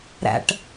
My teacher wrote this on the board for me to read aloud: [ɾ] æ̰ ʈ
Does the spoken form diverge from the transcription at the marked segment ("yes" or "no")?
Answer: no